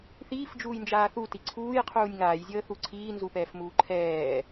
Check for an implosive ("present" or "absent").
absent